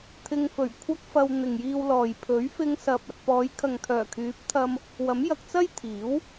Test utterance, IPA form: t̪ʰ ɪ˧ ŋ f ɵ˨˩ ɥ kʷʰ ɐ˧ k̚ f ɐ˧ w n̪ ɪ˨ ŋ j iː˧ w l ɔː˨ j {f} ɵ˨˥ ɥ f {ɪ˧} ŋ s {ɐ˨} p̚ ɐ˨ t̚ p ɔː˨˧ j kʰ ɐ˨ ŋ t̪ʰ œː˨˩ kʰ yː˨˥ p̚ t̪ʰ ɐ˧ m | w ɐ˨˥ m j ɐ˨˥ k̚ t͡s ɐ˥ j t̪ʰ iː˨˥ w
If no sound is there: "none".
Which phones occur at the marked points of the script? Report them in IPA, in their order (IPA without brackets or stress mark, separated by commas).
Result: pʰ, ɪ˧, ɐ˨